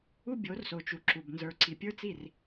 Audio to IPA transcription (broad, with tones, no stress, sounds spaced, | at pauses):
u˦ bʲ o˨˦ r s o˨ t͡ʃ u˨ ǁ u˨ b n z ə˞˨ ǀ i˨ pʲ ə˞˦ t͡s i˦˨ r